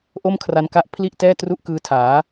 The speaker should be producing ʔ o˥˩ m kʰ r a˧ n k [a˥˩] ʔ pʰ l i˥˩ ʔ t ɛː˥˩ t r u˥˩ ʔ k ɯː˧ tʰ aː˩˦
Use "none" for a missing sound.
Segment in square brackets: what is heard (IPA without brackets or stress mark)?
a˥˩